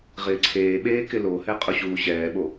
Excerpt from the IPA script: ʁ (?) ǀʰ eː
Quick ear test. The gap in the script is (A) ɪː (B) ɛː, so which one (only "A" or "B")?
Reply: A